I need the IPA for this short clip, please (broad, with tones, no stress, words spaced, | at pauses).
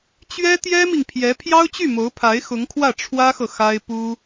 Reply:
t͡ɕɥɛ˥t̪jɛ˥mi˨ŋpʰjɛ˧˥ pʰjɑ˥ʊ̯t͡ɕy˥˩mo˧˥ʊ̯pʰa˧˥ɪ̯ xʊ˧˥ŋkʰwä˥˩ ʈ͡ʂʰwä˥xɤ˨ xa˥ɪ̯ pu˥